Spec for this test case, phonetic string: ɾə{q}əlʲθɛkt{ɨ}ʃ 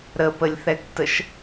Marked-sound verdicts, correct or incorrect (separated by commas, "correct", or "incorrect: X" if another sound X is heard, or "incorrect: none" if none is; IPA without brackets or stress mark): incorrect: p, incorrect: ə